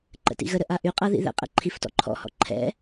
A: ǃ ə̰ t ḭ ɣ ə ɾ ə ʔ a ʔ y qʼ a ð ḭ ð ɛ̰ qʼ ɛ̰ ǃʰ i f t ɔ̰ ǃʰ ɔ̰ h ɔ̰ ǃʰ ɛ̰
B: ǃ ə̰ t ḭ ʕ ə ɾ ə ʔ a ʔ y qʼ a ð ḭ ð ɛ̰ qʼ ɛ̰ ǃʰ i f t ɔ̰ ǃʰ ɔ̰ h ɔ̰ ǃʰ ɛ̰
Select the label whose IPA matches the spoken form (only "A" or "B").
A